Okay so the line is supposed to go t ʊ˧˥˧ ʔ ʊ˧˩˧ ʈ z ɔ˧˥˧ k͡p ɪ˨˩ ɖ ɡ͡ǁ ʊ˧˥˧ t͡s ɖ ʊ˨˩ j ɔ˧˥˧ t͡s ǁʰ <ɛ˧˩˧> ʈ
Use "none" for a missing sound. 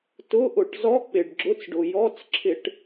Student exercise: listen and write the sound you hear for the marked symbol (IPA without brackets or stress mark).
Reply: ɪ˧˩˧